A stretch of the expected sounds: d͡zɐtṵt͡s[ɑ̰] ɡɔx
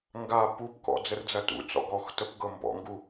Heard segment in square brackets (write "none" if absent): ɔ̰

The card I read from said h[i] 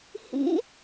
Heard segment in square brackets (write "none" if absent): ḭ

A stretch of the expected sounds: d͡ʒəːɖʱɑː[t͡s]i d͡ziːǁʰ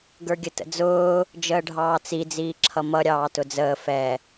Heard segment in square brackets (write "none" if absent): t͡s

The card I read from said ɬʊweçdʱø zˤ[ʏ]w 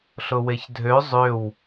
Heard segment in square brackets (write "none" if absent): ʏ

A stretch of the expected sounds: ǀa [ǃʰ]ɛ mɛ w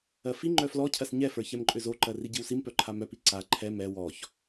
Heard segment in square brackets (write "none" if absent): ǃʰ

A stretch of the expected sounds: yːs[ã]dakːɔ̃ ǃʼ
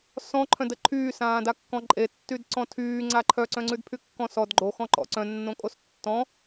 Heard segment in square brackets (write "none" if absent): ãː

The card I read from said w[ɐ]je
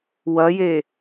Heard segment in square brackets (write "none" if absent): ɐ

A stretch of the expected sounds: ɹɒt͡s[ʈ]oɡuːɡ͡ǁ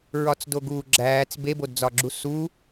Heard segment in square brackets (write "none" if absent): d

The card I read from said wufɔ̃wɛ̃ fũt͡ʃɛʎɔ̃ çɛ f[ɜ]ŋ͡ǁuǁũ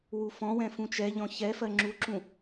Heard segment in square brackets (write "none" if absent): ɜ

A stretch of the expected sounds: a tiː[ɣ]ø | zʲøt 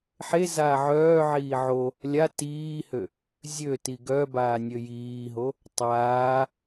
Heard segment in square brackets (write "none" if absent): h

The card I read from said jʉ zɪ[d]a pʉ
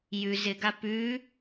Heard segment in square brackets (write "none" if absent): ɡ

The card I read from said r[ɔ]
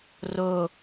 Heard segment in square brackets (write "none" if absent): o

